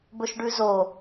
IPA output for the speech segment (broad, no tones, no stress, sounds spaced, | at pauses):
b ɵ ʃ ɖ ʉ z o